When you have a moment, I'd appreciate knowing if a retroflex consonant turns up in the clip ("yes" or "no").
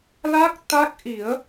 no